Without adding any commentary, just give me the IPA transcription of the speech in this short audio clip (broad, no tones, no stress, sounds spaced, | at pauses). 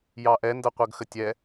j ɑ ʔ ɛ n d ɤ qʷ ɤ ɡ x ə tʲ ɛ